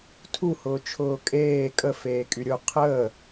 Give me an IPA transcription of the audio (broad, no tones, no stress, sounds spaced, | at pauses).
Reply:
tʰ u h ʊː t͡ʃʰ ʊː kʼ eː kʼ ə f eː kʼ y ɾʲ ʊ qʰ əː